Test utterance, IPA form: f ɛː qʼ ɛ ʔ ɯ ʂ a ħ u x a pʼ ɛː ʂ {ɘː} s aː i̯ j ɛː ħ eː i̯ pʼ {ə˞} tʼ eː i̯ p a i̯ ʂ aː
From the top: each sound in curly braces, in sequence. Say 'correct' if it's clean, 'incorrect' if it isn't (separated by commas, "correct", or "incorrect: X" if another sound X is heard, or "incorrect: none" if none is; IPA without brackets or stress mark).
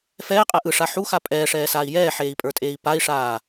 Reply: incorrect: ɛː, correct